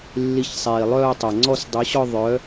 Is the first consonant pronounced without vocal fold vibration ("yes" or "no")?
no